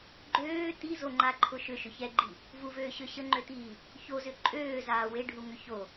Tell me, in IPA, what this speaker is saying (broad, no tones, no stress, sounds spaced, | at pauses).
ɡ͡ǃ øː t i z o ŋ͡ǃ a ǃʰ ʊ ʃ ʏ ʃ ʏ ç ɛ ɡ͡ǃ i | v u v øː ɕ ø ɕ ə ŋ͡ǃ ø t iː | ç o z ʏ ǃʼ øː z aː w e ɖʱ u ŋ ʏ ç o